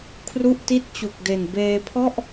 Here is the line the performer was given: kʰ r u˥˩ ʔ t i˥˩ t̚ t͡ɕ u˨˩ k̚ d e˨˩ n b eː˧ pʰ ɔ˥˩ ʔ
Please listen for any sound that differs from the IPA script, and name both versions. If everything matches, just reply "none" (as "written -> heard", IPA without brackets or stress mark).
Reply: none